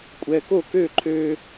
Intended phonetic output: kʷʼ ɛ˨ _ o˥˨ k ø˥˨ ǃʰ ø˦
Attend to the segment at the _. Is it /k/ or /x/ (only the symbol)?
k